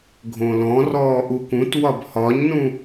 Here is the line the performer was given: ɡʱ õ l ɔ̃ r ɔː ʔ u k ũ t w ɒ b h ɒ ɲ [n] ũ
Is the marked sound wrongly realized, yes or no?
no